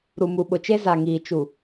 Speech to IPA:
ɾ u˨ m u˨ ɓ ʊ˨ t͡ʃ e˦ z a˨ ŋ iː˨ t͡ʃ u˨

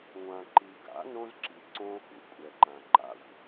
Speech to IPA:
ŋʷ ã˨ ǃ i˨ ɡ a̰˨˦ n õ˦ z ǁ i˨ ǀ õ˦ x ṵ˨ kʷʼ ɛ˨ ǃ ã˨ ǃ a̰˦ xʷ

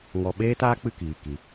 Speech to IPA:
ŋ ɔ˧ ɓ eː˦ t aː˦ k͡p ɨ˦˨ k iː˨ k i˨˦

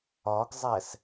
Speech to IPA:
ɒ ɡ zˤ æ s

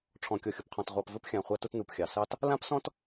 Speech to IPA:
ʈ͡ʂʰ ɔ̃˨ kʲ ɔ˨ xʲ ʊ˨ p qʰ ɔ̃˨ t ʁʷ ɑ˨ p v ɘ˦ p xʲ ã˨ χʷ a˦ t ʊ˦ t n u˨ p xʲ ɑ˨ s ɑ˦ t | l ã˦ p s ɔ̃˦ t

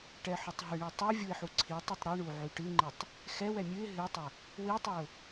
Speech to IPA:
ʈ ɛ ħ ʉ tˤ ɦ ɨ ɳ i tˤ ʉ vʲ u ɪ̯ ħ u ǀʰ i tˤ ɨ tˤ ɾ ɨ ɳ u ʕ y ʈ ɨ ŋ͡ǃ i tˤ | x ɛ w ɛ mʲ ɨ ɪ̯ ɦ ɨ tˤ ɛ | w i tˤ i ʊ̯

